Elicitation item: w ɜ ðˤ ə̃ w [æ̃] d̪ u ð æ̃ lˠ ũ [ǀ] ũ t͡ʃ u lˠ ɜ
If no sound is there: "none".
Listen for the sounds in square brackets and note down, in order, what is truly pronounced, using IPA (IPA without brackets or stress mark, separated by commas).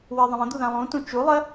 ə̃, t